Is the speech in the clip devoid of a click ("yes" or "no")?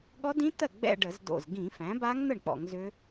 yes